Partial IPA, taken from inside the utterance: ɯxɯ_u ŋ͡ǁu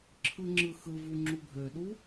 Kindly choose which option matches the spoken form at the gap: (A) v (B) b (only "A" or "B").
A